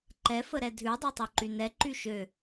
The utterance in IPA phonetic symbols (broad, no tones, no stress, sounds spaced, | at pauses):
ǃ ɛ f ə ɾ ɛ dʱ ʉ dˤ ø tˤ ø ǃ y n ɛ ǃ y ʃ ø